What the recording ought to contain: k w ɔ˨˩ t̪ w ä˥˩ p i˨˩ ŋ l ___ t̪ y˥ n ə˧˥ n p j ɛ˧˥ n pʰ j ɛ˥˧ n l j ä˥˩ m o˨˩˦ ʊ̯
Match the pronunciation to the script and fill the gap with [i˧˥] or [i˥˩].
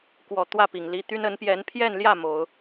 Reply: i˧˥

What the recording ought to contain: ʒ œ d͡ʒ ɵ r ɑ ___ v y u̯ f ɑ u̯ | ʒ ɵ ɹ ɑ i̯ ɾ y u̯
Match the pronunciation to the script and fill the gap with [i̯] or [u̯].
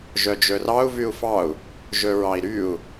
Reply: u̯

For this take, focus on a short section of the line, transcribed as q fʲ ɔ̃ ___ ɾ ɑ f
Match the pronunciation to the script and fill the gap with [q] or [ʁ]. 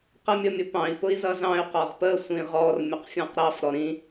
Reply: q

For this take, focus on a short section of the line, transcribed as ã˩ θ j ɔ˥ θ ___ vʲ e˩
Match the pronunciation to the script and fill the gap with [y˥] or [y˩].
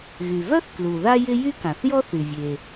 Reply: y˩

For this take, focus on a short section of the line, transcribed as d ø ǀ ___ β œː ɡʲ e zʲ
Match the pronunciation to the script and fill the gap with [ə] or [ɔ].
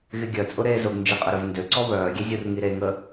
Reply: ɔ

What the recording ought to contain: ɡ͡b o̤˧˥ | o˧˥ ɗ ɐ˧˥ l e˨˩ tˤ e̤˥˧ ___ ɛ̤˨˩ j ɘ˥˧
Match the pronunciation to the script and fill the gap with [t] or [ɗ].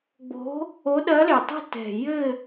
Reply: t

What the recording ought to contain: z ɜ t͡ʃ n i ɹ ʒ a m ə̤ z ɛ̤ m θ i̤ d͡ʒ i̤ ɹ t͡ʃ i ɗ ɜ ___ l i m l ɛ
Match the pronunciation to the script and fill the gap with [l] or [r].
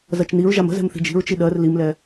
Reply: r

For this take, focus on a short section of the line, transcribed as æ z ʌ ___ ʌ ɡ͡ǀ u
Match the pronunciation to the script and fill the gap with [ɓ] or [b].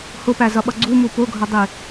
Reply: ɓ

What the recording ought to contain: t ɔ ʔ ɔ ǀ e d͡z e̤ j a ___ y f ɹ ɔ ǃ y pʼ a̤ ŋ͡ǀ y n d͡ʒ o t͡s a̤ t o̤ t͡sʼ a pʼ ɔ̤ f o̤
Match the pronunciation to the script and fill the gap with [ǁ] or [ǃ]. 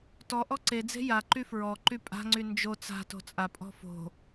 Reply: ǃ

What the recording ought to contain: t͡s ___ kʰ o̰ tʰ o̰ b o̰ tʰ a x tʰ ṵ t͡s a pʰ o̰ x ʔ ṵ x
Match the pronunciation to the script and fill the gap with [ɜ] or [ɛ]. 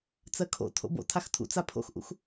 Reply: ɜ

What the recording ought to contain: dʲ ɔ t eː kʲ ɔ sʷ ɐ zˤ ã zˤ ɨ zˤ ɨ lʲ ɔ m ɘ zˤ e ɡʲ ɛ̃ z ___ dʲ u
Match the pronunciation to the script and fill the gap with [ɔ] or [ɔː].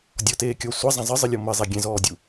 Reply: ɔː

